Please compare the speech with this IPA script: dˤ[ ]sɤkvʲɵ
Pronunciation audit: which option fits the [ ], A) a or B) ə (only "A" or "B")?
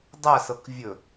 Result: A